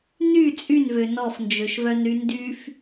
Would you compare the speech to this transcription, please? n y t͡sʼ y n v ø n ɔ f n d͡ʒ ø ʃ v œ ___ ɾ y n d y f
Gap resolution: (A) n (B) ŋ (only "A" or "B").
A